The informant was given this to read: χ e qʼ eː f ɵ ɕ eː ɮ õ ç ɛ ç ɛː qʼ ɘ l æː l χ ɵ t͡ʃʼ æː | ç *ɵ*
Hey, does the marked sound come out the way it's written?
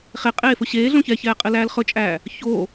no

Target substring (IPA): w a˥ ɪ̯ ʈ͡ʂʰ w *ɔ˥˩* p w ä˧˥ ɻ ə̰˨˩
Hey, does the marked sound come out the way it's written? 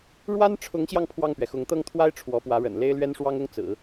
no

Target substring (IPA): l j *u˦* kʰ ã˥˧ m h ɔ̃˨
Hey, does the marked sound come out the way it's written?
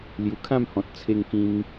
no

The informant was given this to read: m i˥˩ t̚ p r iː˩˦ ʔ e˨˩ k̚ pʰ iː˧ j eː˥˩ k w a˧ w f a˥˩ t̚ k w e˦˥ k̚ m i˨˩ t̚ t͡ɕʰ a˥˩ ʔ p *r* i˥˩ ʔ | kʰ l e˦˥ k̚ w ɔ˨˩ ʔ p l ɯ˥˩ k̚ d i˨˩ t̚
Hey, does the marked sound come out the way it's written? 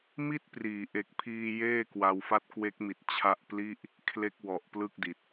no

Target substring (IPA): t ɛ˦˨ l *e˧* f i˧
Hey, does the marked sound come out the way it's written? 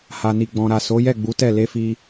yes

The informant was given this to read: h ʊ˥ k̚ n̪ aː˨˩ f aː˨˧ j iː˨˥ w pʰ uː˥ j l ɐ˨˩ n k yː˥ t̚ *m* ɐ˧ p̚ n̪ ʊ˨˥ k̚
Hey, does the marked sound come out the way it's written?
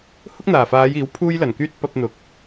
no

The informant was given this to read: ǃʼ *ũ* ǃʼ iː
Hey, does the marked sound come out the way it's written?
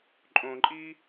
no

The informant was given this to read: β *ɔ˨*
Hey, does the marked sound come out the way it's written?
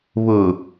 no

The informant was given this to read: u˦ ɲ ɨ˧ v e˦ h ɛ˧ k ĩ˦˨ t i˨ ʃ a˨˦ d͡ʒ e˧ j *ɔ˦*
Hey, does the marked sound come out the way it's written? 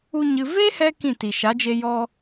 yes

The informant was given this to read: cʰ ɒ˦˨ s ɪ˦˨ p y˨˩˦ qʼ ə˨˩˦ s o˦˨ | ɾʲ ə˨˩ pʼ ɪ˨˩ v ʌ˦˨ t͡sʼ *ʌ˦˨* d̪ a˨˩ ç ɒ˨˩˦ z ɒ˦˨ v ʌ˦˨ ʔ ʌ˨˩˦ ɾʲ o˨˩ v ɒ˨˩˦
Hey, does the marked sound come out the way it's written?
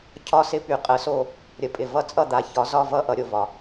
yes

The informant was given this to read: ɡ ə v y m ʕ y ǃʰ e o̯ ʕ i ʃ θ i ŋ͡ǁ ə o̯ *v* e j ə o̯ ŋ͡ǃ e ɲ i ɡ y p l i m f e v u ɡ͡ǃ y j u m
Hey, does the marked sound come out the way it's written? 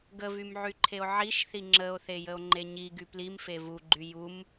no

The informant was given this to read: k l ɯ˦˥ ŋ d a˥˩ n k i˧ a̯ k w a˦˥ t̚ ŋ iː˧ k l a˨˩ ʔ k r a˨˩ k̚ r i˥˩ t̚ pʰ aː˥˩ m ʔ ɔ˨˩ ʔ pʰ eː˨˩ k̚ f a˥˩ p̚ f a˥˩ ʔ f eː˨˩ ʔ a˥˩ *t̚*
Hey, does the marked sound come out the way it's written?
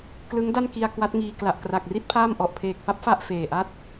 yes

